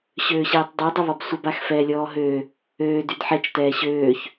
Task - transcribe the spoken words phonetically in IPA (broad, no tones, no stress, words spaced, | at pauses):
ɕøːɕɛːtˤdˤi dˤəβɔbsʷəb axfɛːlʲɔːɦø | øː dydħɛt͡ʃ tɛːɕøːç